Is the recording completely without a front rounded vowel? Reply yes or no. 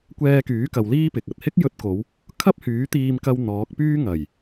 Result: no